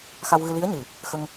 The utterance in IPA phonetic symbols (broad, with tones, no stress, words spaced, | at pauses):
xa˧wɣɨ˧li˧˥ə̯ɲɨ˨˩ | xə˧ŋ